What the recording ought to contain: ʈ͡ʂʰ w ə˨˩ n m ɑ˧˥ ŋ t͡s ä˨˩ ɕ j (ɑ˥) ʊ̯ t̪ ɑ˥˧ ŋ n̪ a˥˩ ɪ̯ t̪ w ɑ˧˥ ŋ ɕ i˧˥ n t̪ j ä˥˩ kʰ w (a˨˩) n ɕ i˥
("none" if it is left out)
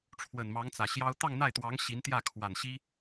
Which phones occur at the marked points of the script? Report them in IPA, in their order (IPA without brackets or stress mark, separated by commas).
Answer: ɑ˥, a˨˩